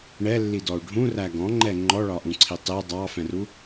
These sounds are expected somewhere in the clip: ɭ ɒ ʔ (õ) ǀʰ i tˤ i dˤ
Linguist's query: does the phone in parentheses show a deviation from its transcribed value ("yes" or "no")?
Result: yes